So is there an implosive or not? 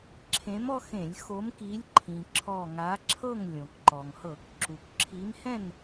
no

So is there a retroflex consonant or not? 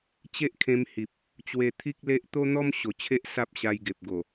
no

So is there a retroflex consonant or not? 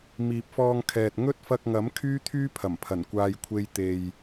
no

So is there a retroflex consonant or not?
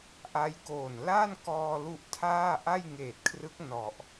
no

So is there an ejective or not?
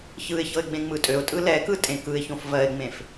yes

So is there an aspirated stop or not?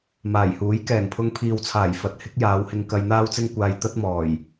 yes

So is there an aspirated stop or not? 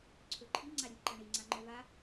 yes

